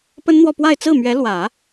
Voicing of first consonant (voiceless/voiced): voiceless